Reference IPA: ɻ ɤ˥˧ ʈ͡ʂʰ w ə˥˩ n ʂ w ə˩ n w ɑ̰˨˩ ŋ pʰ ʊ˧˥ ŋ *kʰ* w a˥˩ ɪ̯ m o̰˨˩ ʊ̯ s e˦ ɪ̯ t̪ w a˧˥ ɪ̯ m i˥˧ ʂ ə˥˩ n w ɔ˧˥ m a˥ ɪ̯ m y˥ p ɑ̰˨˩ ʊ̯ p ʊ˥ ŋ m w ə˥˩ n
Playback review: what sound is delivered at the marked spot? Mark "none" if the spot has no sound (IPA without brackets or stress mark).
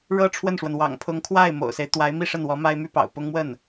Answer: kʰ